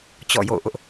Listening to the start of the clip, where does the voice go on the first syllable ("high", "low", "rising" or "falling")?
falling